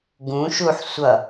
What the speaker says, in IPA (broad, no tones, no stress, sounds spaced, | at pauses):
ɡ ũ ʃ u ħ sʷ ʌ